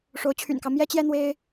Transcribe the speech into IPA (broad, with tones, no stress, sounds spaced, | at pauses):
ʂ o˧˥ ʊ̯ t͡ɕʰ y̰˨˩ n k ɑ˦ ʊ̯ m j ɛ˥ t͡ɕ j ɛ˥ n̪ w e˥ ɪ̯